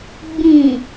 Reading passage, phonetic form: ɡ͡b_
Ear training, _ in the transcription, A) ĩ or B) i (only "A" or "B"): A